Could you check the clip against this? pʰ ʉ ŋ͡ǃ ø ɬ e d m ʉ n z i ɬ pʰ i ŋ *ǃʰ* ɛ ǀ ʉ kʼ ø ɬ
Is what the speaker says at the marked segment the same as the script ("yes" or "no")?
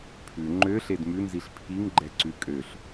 no